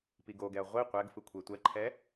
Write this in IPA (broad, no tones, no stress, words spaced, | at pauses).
piɡoɡɛɐ̯ ʁʷi qʷɛɡ fɯkʷʰetʷɛǃʰɛ